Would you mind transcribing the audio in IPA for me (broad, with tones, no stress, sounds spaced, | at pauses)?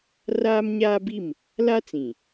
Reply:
r aː˦ m ɲ aː˦ b i˦˨ m | l a˦ t͡s ĩ˨